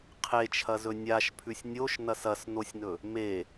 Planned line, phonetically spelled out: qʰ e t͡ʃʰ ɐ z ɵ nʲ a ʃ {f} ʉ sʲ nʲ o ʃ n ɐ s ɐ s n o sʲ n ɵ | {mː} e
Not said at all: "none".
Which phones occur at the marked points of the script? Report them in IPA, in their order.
pʰ, m

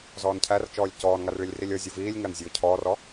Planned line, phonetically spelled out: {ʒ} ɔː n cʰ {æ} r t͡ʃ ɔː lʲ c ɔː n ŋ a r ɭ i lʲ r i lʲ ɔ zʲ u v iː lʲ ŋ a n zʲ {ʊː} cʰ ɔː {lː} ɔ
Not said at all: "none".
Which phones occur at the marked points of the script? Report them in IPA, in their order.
z, æ, ʊː, r

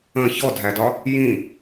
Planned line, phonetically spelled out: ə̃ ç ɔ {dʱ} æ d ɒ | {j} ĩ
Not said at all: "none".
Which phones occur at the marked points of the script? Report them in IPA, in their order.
dʱ, j

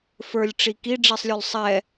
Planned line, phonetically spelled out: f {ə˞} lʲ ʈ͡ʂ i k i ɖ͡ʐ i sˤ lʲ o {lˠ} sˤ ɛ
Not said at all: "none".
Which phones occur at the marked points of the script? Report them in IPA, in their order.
ə˞, lˠ

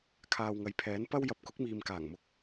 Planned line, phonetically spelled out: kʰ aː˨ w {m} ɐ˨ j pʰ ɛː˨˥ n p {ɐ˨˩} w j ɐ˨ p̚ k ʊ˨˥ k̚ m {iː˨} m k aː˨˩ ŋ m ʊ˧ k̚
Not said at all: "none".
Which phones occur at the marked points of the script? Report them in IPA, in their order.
ŋ, ɐ˥, iː˨

